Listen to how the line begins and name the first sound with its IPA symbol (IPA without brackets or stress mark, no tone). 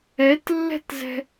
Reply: ɛ